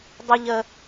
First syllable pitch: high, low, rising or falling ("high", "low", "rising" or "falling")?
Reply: low